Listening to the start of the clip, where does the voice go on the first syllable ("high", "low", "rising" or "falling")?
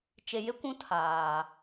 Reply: low